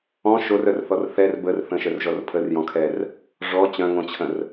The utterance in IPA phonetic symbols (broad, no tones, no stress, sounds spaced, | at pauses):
ɔ̃ ʃ o r œ r θ ɔ r θ ɛ r b ə r θ ə̃ ʃ œ r ʒ ɔ r pʰ ə r j ɔ̃ kʰ ɛ r | ʐ ɔ t͡ɕ œ̃ ŋ õ t͡ɕʰ ə̃ r